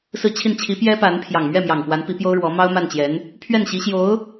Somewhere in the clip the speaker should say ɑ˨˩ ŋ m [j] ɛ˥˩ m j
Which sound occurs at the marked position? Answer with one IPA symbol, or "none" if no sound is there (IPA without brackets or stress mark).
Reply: ɥ